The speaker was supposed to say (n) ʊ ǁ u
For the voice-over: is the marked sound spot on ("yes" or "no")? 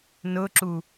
yes